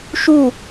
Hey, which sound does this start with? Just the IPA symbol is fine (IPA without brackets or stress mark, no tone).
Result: ʃ